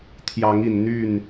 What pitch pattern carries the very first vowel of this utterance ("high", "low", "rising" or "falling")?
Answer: rising